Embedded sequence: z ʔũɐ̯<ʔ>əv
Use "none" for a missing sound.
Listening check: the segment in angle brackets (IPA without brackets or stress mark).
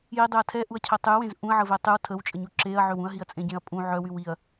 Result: ʕ